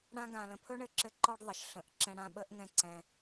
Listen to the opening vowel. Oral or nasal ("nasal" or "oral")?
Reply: nasal